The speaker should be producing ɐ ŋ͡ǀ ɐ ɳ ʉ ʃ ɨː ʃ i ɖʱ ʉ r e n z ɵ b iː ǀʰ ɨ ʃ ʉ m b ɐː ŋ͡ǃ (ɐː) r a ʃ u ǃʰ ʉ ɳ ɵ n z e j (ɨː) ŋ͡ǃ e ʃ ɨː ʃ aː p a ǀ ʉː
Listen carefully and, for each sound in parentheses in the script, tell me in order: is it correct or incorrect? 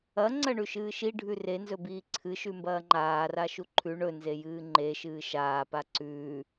incorrect: aː, correct

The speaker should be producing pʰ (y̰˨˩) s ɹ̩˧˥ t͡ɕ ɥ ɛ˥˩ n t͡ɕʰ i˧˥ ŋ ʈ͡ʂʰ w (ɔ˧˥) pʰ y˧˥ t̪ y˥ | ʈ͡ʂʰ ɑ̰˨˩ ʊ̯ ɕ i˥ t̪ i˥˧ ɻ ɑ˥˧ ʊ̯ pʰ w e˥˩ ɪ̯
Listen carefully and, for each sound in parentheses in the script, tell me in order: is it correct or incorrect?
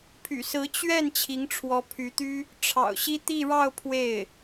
correct, correct

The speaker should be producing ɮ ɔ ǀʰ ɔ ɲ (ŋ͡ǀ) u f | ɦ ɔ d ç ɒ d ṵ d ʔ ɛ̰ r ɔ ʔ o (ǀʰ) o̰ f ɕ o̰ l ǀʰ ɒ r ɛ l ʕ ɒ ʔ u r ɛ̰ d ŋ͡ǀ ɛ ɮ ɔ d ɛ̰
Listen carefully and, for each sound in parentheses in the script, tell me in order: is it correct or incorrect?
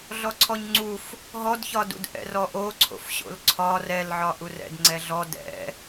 correct, correct

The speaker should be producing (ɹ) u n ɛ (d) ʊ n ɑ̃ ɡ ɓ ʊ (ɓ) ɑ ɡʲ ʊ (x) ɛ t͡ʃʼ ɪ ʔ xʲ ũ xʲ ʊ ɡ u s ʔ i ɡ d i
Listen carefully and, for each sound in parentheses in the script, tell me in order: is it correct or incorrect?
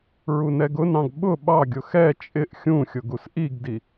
correct, incorrect: ɡ, correct, correct

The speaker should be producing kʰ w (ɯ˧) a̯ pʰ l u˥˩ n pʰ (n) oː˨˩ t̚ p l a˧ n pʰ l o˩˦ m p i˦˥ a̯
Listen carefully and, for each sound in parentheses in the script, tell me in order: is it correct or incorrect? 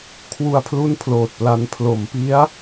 incorrect: u˧, incorrect: l

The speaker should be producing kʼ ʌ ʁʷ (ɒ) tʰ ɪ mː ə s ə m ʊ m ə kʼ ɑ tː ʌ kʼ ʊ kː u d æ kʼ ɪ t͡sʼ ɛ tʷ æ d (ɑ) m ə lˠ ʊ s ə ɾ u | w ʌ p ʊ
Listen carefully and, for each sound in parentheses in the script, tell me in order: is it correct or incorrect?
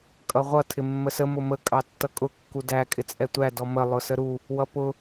incorrect: ʌ, incorrect: ɔ

